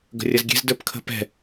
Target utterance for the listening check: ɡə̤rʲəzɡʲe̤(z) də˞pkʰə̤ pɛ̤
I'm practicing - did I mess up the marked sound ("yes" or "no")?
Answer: no